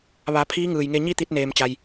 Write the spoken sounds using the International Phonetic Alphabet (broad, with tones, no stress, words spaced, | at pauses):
ʋa˩˧ pʰiː˧˥ŋɯː˩jŋe˧ ɲi˥˨t̪i˧t̚neː˩mt͡ɕa˩j